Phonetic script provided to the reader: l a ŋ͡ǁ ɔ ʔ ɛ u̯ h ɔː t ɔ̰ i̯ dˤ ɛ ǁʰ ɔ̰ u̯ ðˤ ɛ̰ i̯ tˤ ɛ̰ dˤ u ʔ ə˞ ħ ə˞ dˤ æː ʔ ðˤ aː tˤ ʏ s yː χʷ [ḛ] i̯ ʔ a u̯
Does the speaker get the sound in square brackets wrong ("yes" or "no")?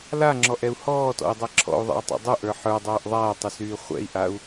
yes